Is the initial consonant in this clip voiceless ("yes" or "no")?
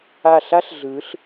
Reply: yes